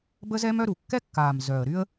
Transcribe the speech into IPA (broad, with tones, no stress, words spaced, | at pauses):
bə˥zɛ˥mœ˥ ɾu˨˩kːɛ˥kːaː˨˩m zœ˨˩ə̯ ɾy˥ə̯